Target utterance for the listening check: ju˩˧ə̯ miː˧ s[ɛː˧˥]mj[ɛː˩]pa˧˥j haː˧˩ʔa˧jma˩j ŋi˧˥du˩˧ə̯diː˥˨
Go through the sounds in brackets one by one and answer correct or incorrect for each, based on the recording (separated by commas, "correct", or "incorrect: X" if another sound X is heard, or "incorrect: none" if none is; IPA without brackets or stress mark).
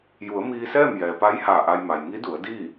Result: incorrect: ɛː˥˨, correct